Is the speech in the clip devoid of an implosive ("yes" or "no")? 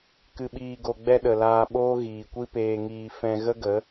no